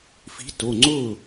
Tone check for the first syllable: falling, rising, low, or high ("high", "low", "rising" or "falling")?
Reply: rising